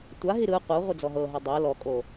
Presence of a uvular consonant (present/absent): present